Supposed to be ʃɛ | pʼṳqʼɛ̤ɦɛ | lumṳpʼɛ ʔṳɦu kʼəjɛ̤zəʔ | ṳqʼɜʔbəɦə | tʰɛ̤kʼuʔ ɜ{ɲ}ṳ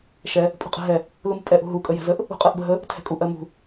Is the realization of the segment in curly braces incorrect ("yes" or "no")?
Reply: yes